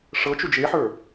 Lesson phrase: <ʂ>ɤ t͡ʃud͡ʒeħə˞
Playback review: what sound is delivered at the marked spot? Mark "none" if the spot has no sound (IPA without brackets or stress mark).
ʂ